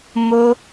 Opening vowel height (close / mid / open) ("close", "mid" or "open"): mid